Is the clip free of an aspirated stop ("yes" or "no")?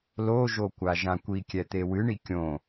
yes